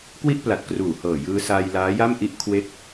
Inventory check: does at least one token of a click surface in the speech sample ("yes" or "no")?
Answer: no